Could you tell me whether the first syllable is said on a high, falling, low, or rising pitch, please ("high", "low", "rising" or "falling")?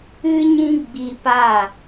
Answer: high